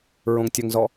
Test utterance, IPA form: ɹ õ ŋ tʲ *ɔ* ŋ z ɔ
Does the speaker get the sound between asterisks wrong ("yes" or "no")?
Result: yes